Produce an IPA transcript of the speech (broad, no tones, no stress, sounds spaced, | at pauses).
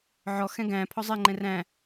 ʕ ɔ x ɛ̃ ɡ æ̃ pʰ ɔ zˤ ɛ ŋ͡ǃ ɛ̃ r æ̃